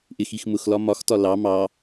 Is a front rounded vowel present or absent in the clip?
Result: absent